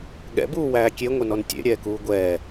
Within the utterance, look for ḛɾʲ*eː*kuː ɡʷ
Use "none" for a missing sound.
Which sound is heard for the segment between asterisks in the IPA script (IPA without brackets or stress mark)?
ɛː